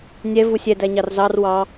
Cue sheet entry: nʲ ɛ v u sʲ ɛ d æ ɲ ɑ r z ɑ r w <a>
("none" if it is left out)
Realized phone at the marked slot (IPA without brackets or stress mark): ɑ